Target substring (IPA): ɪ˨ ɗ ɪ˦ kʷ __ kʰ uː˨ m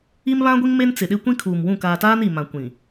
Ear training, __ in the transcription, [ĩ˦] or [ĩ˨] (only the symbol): ĩ˦